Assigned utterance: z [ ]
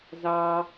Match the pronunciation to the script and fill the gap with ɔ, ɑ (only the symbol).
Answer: ɑ